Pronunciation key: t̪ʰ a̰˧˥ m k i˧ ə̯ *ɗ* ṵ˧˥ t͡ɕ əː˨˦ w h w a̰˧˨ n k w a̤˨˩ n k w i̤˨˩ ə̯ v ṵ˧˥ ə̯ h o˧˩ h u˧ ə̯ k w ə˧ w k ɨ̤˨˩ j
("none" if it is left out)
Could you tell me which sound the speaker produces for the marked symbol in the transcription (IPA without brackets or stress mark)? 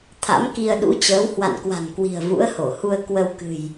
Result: ɗ